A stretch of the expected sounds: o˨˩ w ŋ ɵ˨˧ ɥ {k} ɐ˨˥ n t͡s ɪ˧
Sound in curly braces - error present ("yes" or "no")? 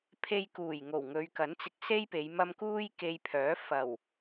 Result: no